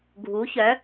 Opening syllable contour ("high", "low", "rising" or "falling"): rising